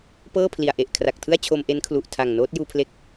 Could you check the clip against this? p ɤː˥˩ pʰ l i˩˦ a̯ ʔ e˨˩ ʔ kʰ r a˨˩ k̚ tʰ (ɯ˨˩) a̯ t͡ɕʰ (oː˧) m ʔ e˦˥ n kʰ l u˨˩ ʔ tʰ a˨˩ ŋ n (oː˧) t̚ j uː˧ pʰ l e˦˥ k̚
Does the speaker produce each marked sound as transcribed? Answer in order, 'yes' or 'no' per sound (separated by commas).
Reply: no, no, no